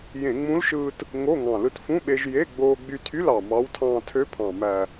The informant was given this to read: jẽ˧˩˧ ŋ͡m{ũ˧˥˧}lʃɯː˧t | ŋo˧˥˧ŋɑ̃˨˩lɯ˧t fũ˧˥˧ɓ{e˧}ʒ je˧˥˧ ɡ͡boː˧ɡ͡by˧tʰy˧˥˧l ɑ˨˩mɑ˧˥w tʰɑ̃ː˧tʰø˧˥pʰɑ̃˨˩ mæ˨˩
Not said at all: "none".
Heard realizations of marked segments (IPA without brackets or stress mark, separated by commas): ũ˧˥, e˧